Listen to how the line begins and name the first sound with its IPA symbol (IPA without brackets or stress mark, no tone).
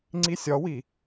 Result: ŋ͡ǀ